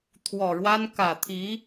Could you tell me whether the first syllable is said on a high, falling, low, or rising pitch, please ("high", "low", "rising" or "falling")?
low